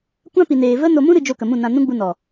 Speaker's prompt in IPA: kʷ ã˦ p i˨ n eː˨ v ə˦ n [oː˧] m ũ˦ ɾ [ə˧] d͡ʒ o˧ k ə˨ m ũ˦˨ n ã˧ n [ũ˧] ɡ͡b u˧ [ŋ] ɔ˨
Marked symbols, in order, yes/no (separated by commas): no, no, no, no